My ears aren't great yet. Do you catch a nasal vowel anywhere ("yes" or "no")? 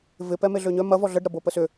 no